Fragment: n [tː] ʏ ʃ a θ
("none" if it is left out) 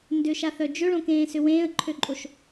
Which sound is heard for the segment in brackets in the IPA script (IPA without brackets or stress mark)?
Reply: d